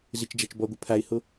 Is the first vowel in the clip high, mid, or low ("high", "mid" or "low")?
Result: high